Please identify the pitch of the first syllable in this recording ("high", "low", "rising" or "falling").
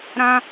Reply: high